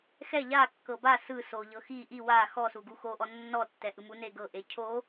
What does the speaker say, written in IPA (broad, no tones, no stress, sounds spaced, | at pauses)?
x ɛ ʎ a kː ɤ b a s ɯ s o ʎ ɤ x i ʔ i w a x ɔ s u ɡ u x o ʔ ɔ nː ɔ tː ɛ ʔ ɯ m u n e ɡ ɤ ʔ e cʰ o